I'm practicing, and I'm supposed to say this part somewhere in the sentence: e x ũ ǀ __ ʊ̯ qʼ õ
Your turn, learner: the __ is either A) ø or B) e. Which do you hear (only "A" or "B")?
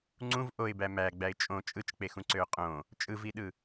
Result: A